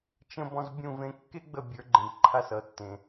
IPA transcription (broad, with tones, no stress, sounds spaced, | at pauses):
t͡ʃ ə̃˧ b ɔ̃˧ z bʲ ũ˦˨ v ẽ˧ kː e˦ ɡ͡b ə˦˨ bʲ ə˞˨˦ ɡ͡ǃ ẽ˨ b ǃʰ a˧ s ʌ˨ tː ẽ˨